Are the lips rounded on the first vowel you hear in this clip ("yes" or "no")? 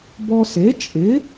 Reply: yes